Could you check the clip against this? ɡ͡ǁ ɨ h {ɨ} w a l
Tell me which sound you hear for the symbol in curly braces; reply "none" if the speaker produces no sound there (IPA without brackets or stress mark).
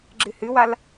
ɨ